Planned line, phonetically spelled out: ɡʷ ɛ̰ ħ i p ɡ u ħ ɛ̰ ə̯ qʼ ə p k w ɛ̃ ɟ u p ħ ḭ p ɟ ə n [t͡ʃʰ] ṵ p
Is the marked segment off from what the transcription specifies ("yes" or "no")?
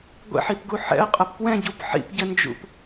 yes